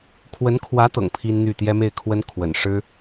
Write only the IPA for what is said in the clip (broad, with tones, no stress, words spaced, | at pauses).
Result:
kʰwə˧˥n kʰwä˧˥ t̪ɤ̰˨˩ŋpʰi˥nn̪y˥˩ t̪jɛ˥me˥˩ɪ̯kʰwə˥n kʰwə̰˨˩nʂɻ̩˥